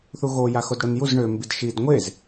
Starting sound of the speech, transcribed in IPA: θ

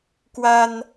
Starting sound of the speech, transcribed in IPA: k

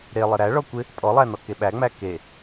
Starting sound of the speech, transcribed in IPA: ɾ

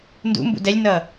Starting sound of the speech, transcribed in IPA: n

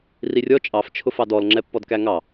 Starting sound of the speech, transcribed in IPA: r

